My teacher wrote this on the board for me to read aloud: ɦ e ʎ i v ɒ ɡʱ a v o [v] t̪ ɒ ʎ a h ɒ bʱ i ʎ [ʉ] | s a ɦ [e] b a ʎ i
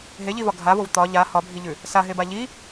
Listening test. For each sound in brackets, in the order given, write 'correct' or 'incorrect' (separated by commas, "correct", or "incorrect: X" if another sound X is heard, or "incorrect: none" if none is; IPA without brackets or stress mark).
correct, correct, correct